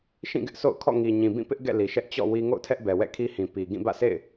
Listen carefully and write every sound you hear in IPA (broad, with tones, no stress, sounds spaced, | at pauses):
ʃ ĩ˦˨ ɡ ɪ˦ ʔ sʰ o̰˦˨ ʊ̯ kʰ ɔ̰˦˨ ŋ i˨ ɲ ĩ˨ b ĩ˦˨ p ɪ˦ ʔ ɡ ɛ̰˦˨ l i˨ ʃ ɛ˦ ʔ t͡ɕ ɔ̰˦˨ w i˦ ŋ o̰˦˨ ʊ̯ tʰ ɛ˦ ʔ b ɛ˨ w ɛ̰˦˨ kʰ i˦ h ĩ˨ p i˨ ɡ ĩ˦˨ b ä̰˦˨ sʰ ḛ˦˨ ɪ̯